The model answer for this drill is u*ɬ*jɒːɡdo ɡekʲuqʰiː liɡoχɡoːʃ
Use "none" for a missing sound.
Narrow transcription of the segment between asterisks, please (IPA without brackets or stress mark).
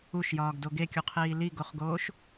ʃ